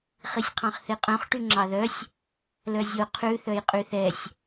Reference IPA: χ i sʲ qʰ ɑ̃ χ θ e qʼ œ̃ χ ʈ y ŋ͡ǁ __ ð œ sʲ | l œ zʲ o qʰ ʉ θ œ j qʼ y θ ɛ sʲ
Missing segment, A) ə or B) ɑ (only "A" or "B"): B